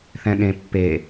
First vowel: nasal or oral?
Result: nasal